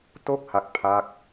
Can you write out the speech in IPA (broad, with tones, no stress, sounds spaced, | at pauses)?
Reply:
t o˥˩ k̚ h a˦˥ k̚ pʰ a˥˩ k̚